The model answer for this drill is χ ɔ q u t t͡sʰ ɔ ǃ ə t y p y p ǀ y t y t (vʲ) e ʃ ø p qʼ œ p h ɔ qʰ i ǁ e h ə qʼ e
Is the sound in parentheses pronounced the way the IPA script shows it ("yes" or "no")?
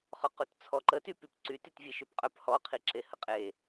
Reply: yes